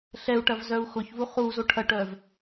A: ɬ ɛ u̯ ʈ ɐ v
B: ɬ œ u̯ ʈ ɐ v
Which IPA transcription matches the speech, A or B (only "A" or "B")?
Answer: A